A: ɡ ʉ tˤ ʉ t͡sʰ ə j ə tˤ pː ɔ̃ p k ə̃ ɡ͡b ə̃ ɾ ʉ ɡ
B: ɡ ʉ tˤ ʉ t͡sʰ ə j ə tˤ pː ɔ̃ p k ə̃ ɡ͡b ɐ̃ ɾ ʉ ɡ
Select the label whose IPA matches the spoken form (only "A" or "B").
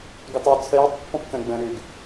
A